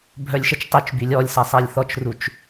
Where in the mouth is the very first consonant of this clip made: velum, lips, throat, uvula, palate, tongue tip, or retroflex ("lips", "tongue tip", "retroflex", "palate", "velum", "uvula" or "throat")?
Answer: lips